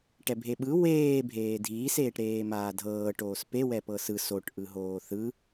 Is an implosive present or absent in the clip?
present